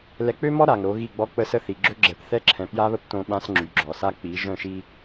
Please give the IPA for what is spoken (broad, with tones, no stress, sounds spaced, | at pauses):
l ɛ˨ k͡p ø˦ m ɔ˦ ɾ a˨ ŋ ɾ o˨˦ ɣ i˦˨ ɡ͡b ɔ˦ k͡p ə˦ s ə˦ θ i˨ ɡ͡ǁ ø˦ ɡ͡ǁ ɛ˨ p θ ɛ˦ ǁʰ ɛ̃˨ p j a˦ β ə˦ p t õ˦ ɓ ã˦ s ŋ͡ǁ y˨˦ ɡ͡ǁ ɔ˨ s a˦ k͡p i˨˦ ʒ œ̃˦˨ ʃ i˦